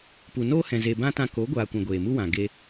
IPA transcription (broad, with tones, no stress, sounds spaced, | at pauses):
p u˨ n oː˦ h ɛ̃˨ z e˨ b ã˧ t ã˧ k o˨˦ ɡʷ aː˨ kʷ ɛ̃˨ ɡʷ eː˨ m u˦ w ã˨ ɡ e˧